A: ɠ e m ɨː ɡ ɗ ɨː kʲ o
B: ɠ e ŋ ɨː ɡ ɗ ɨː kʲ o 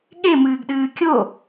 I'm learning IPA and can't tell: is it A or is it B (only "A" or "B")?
A